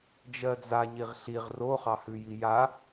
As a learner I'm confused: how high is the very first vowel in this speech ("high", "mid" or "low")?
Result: mid